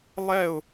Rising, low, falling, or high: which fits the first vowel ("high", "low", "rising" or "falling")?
falling